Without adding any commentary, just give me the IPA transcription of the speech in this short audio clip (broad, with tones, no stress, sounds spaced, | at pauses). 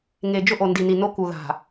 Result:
ŋ e˨ d͡ʒ ʊ˦ ʔ o˨ n d i˨ n i˨ n o˦ k u˨ ð a̤˨